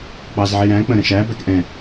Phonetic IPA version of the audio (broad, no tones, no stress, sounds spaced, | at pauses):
k͡p ɑ z ʕ i ɾ æ̃ k͡p ə̃ ɾ ə̃ ʃ æ b æ k ʔ ɛ̃